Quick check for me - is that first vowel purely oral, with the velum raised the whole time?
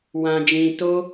no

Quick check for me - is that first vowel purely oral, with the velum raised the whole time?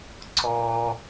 yes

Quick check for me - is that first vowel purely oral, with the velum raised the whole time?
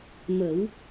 yes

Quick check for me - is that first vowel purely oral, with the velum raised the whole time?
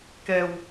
yes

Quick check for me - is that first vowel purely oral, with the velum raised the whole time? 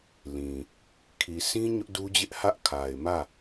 no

